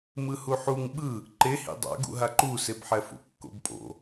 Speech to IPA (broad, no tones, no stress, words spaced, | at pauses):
mɯhuħuŋ ɓɯ | ǃehḭ dˤa̰ɡṵɦa ǃusebħɛfṵ kːo̰bpʼo̰